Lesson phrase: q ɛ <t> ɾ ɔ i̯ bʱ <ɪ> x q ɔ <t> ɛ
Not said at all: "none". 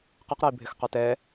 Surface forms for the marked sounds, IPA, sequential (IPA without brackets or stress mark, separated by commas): q, ɪ, t